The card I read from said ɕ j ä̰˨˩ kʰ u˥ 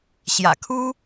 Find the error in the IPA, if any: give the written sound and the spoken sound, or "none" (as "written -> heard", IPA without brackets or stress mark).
none